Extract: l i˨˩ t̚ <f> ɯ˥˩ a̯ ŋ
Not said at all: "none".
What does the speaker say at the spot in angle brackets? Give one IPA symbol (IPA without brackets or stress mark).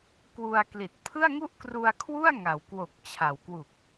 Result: pʰ